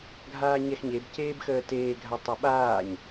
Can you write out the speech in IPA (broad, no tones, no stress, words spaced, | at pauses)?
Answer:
ɡʱaːɲɛxɲebceːb xəːteːɡʱa tˤʌɓaːɲ